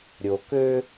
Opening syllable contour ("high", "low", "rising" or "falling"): low